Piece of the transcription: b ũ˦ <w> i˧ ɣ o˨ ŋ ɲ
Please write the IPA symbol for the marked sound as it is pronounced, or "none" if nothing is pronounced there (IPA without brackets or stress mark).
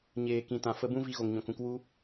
v